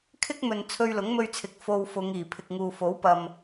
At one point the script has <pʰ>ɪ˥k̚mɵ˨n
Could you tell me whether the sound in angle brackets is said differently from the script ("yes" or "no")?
yes